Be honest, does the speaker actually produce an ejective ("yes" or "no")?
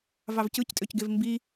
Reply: yes